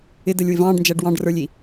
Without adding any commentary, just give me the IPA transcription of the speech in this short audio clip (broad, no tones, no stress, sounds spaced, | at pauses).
ɪ d ə lʲ w ɪ v ɑ̃ː ɖ n d͡ʒ æ ɖ w ɑ̃ ɖ r ə˞ lʲ i